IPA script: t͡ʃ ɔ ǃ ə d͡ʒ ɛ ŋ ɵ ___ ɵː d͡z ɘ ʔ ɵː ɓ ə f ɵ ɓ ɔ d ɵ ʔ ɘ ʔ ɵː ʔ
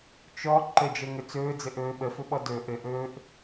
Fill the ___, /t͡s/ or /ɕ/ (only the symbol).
t͡s